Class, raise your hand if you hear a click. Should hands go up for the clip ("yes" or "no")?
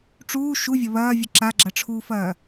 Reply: yes